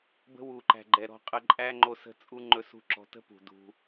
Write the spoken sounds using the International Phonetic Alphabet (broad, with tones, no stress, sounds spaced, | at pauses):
b ə̤˧ w u˨ ǃ æ̤˨ ɡ͡ǃ ɛ˨ ɾ ɔ̤˧ qʼ ə˧ ǃʼ æ˦ ŋ͡ǃ o˧ s ə̤˦˨ t͡sʼ u˦ ŋ͡ǃ ɵ˦ s ṳ˦ ǁ ɔ̤˧ t ə̤˦ p ṳ˨ d ṳ˧